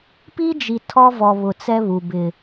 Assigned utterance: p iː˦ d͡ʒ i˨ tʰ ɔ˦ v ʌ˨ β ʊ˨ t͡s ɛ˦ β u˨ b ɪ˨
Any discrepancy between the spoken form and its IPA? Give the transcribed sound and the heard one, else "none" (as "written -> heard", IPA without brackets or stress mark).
ʌ˨ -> ɔ˨